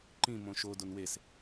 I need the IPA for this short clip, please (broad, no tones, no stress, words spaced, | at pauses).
ǃĩ mõʃo donwes